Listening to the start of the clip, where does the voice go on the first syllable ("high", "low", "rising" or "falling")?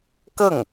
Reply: falling